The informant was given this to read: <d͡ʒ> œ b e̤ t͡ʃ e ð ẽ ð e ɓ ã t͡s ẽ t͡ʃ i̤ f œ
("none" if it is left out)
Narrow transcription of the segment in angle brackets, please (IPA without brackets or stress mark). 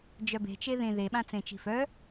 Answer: d͡ʒ